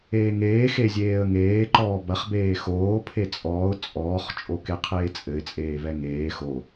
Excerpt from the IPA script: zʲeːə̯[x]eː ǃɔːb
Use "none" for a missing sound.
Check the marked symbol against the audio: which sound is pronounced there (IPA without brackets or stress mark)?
ŋ